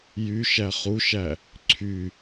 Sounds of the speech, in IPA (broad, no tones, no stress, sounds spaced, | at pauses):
j y ʃ æ χ u ʃ æ | ǀʰ y